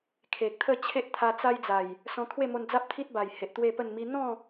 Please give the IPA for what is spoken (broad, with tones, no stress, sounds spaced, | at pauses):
kʰ e˨ k̚ t̪ʰ ə˥˧ t͡ɕʰ e˦ ʔ t̪ʰ a˧ t͡s a˦ j d͡z a˨˩ j | s ɔ̃˧ kʰ w e˥˧ m o˧ n d͡z a˦ p̚ t̪ʰ i˦ t̚ b a˨˩ j h e˨ ʔ t̪ w e˥˧ p ə˥˧ n m i˦ n̪ ɔ̃˥˧